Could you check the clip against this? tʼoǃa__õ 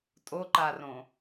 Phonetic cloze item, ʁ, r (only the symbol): r